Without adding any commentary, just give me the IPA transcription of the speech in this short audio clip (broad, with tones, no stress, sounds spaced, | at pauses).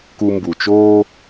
k u˧ m b u˩ t͡ʃ oː˥